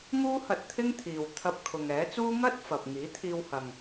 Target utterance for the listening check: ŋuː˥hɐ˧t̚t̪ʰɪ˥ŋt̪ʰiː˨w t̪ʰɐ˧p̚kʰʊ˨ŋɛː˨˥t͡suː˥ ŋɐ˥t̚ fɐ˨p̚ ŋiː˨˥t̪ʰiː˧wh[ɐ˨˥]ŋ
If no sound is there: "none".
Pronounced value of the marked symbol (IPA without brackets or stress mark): ɐ˨